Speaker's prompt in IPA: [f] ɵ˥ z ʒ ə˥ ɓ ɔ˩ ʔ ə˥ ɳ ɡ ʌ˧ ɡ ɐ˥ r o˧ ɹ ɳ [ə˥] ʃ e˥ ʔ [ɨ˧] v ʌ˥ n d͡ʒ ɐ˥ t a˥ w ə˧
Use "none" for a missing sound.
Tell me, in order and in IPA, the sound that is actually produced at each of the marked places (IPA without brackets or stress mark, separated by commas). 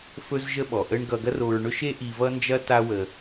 f, ɵ˥, i˧